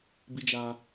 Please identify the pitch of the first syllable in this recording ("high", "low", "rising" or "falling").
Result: high